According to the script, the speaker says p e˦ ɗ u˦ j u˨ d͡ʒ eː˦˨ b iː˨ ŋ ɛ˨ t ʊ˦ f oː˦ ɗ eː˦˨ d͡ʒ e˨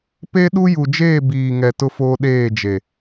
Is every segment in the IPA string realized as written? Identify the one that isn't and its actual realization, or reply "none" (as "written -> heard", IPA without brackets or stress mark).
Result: none